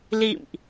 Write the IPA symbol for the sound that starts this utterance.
l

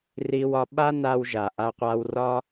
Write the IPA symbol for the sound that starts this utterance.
r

